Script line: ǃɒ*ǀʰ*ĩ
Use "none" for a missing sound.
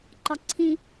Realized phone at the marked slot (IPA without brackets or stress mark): ǀʰ